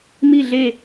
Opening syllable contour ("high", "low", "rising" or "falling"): falling